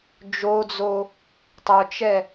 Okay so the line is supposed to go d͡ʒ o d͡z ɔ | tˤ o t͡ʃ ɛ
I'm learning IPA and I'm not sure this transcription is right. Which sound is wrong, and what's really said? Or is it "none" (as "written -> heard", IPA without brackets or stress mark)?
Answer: ɔ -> o